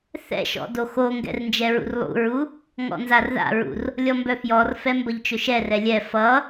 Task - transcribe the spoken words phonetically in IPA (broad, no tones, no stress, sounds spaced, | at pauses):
θ ɛ̰ ʃ ɔ̰ d o x o ŋ ɡ ɛ̰ r n d͡ʒ ɛ ɹ ṵ r lˠ ṵ ɹ u | ŋ ɔ̰ n z a r ð a̰ ɹ ṵ r | lʲ ɔ m b œ f j ɔ r f ɛ m b ʌ ʎ t͡ʃ ɵ ʃ ɛ r ɛ lʲ ɛ f ʌ